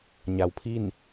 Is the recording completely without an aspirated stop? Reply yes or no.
no